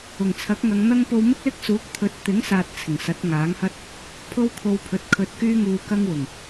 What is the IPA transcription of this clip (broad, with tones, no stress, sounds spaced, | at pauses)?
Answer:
ʊ˨˩ ŋ t͡sʰ ɐ˨˥ k̚ ŋ ɐ˨˧ ŋ n̪ ɐ˥ ŋ p o˧ w m ɪ˥ k̚ l ɪ˥ k̚ s uː˨˥ k̚ t̪ʰ ɵ˨˥ t̚ t̪ ɪ˨˥ ŋ s aː˨ t̚ t͡sʰ ɪ˨˩ ŋ s ɐ˨˥ t̚ ŋ aː˨˥ ŋ h ɐ˥ t̚ | pʰ o˥ w kʰ o˧ w pʰ ɵ˨˥ t̚ kʰ ɵ˧ t̚ k yː˥ ŋ uː˧ k ɐ˥ ŋ w ʊ˨˩ ŋ